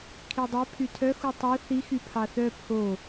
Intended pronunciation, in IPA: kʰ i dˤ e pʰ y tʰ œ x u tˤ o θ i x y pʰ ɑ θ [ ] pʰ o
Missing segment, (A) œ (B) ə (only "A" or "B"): A